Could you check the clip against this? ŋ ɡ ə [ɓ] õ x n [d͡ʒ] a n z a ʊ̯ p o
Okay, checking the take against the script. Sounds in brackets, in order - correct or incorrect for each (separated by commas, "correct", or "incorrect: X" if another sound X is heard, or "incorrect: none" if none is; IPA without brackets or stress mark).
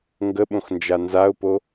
correct, correct